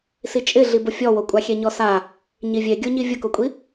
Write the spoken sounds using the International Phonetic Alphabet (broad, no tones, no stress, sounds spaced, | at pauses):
s i t͡ʃʼ ɪ ɮ i b ʊ fʲ ɔ w o kʷʼ a xʲ ɛ ɲ ɔ s a | ɲ i vʲ e ɡʲ o ɲ i vʲ ʊ k o kʷʼ i